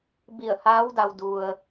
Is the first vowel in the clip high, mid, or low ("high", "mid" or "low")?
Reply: high